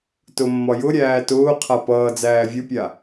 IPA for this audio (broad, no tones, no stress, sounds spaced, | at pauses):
t ʊ mː ɒ j ʊ ɾʲ æː t ʊː qʰ a p ʌː d͡z æː vʲ ʊ pʲ a